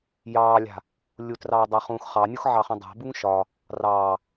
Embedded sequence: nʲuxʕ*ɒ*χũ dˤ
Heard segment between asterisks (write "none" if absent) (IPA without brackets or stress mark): ɑ